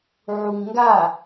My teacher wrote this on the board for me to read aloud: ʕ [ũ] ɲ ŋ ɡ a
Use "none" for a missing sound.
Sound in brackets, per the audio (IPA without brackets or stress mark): u